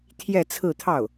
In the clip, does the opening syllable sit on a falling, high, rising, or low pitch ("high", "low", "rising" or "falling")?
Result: falling